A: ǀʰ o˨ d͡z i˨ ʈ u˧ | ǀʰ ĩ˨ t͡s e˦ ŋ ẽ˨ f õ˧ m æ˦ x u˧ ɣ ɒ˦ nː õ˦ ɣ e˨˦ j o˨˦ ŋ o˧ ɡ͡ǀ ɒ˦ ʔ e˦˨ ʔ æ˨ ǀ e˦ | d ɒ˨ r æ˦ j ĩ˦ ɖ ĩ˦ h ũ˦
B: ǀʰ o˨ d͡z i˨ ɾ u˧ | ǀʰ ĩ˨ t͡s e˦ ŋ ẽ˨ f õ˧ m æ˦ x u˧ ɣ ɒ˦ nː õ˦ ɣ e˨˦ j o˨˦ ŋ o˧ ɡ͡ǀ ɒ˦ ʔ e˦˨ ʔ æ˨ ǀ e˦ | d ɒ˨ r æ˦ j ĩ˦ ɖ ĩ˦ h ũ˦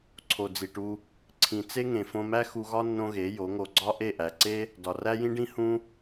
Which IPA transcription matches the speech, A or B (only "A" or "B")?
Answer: A